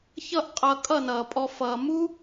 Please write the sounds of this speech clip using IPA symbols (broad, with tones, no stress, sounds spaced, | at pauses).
ç ʌ˦˨ ʔ qʼ ʌ˧ kʼ ʌ˦˨ n ʌː˨ pʼ ɔ˧ f ʌː˨ m u˦